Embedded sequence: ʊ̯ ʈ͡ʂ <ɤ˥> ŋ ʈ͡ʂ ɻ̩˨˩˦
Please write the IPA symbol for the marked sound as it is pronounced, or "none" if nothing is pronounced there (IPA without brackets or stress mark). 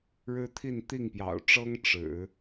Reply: ɤ˥